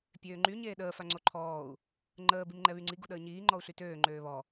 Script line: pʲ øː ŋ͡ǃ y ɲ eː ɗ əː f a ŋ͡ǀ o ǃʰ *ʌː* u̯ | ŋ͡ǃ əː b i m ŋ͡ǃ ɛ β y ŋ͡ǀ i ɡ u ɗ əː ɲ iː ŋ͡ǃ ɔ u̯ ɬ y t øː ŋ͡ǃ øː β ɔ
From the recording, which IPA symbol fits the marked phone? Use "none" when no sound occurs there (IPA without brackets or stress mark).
ɔː